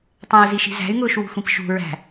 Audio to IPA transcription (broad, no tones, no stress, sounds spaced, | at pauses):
tˤ æ̃ u̯ z i ʃ i̤ z æ̤ y̯ ŋ ʊː ʃ w ṳ xʷ ĩ p ʃ ṳ ɹ æ̤